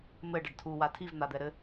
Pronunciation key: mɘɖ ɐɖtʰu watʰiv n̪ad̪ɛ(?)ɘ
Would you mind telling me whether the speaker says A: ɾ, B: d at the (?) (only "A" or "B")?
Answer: A